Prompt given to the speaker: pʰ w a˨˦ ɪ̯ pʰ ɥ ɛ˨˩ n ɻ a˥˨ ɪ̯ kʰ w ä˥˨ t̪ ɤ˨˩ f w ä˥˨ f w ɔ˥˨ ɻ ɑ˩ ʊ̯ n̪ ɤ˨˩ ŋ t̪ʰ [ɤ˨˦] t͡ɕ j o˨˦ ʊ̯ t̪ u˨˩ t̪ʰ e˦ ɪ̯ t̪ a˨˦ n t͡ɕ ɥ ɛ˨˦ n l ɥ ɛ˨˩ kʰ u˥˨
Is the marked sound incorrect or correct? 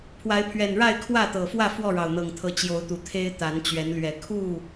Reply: correct